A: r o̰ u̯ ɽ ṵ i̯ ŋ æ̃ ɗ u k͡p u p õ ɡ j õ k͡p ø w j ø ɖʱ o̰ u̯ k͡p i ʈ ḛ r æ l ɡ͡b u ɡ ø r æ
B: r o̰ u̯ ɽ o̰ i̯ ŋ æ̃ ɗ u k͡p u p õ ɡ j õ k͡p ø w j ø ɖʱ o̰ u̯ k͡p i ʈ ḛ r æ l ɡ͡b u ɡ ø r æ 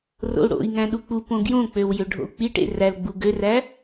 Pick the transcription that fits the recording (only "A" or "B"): B